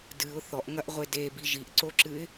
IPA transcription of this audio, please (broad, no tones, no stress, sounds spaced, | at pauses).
d ɨ ʊ̯ θ ɔ ʔ ŋ ɐ ʔ ʁʷ e d e b i ʒ i ʔ ǀ o ǁ ɨ ɪ̯